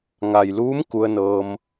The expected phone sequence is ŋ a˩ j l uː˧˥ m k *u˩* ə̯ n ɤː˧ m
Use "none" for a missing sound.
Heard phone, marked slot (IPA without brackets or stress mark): u˧